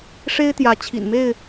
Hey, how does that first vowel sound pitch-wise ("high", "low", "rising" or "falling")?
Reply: high